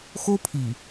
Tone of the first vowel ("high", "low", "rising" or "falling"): high